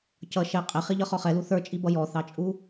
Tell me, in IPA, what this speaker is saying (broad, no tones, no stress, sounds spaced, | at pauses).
c ʌ ʃ ɛ qʼ ɪ χ i ʎ ʌ χ ɔ χ ɛ l u θ ə˞ t͡ʃʼ i b ʌ j ɔ θ ɑ t͡ʃʼ u